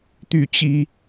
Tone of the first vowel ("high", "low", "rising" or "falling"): falling